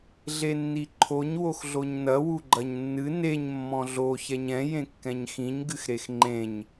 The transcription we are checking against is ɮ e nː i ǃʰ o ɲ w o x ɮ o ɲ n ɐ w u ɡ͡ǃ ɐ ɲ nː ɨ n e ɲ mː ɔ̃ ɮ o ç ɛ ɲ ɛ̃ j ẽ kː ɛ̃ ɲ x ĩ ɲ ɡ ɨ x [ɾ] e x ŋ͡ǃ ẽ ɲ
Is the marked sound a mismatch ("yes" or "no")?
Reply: no